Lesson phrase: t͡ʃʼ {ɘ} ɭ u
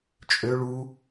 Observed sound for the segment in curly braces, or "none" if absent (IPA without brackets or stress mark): ø